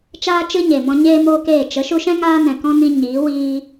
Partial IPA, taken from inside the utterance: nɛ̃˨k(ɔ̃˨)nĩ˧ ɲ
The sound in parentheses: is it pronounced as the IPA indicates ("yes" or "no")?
no